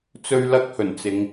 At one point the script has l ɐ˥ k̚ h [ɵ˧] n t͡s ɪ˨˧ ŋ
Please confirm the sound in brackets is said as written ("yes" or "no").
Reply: no